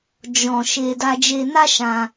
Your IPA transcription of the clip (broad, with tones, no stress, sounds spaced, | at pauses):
d͡ʒ ɔ̃˨ ʃ e˧ d a˧ d͡ʒ e˧ n a˦ ʃ ã˧